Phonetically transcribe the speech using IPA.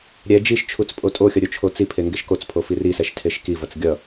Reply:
ɾʲɛ d͡ʒiʃt͡ʃʰut͡s pʼotʼoxʲʌ ɾʲot͡ʃʰot͡sipʰe ŋɡeʃkot͡spʰo firisɛʃ tʰeʃkivʌt͡s ɡʲʌ

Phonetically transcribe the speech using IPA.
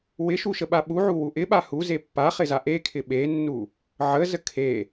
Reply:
wɪʃuʃəɓa ɓuʕuwu ʔɪɓa huze pːaχɪza ʔekʰɪ ɓenːu | ʕəzə kʰe

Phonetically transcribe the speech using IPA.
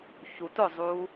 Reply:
çut ʊzˤuː

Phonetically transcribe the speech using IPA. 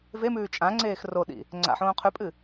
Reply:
vemʉː t͡ʃʼãŋ͡ǀeːx roɗḭ | ŋ͡ǀa̰ħõː qʰʉpʼɨ

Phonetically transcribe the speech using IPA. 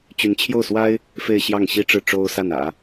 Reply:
t͡ɕy˧˥nt͡ɕʰjo˥˩ʊ̯swa˥ɪ̯ | fe˥˧ɪ̯ɕjɑ˥˩ŋɕi˥ʈ͡ʂɻ̩˥˩ ʈ͡ʂo˥ʊ̯sa˥˩n ä̰˨˩˦

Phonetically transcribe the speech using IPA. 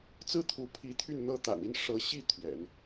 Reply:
t͡sɹ̩˥˩t̪ʰu˧˥pʰi˧˥ t̪ʰy˥˧nn̪ɤ˥˩ t̪a̰˨˩ni˥˩n ʂɤ˧˥ɕi˥˩ t̪ʰɥɛ̰˨˩˦n

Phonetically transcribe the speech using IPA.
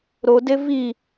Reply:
ɾode vi

